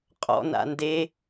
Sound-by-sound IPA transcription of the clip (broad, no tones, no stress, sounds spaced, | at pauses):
qʼ ɔ̰ n a̰ n d e